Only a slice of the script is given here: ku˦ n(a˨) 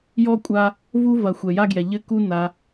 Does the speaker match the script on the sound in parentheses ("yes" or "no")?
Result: no